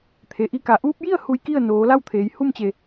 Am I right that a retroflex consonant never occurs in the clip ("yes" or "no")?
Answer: yes